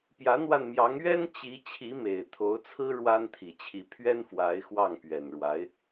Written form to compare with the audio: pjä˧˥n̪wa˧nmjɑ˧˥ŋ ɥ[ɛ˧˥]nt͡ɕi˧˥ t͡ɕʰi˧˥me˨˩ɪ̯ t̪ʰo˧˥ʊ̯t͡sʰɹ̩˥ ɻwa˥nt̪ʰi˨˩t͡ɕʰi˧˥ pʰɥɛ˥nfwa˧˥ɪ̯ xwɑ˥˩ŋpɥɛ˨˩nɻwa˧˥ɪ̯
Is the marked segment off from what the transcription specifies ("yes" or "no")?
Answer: yes